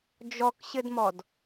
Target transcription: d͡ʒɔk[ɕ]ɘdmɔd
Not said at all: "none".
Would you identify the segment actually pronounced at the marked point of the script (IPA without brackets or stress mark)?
ɕ